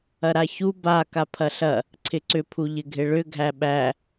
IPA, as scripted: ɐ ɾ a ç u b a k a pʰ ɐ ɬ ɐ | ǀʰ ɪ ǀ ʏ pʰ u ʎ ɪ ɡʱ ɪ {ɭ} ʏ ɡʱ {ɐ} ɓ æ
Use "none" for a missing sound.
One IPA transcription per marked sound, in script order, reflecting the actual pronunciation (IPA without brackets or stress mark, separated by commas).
ɭ, æ